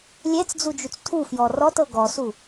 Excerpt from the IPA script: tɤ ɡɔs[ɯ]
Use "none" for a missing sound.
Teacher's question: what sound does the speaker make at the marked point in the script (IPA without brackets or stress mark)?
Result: u